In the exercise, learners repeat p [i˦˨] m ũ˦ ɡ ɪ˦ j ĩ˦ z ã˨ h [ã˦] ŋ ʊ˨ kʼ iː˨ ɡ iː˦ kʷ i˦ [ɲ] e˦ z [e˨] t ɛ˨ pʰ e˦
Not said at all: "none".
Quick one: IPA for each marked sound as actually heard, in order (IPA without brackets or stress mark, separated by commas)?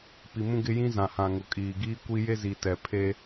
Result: i˨, ã˨, j, i˨